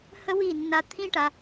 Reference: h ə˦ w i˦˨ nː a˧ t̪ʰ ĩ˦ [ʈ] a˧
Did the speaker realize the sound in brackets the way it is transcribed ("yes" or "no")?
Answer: yes